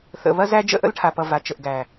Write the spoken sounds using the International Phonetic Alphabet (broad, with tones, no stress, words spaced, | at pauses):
θə̰˨βɐ˦zæ˦ d͡ʒə̰˦ʔə̰˦lʈʰa˨pʌ˨ va˨t͡ʃə˨ʔɡæ˨